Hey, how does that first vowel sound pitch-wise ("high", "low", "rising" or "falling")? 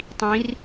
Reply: rising